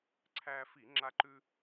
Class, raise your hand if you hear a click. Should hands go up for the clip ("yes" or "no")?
yes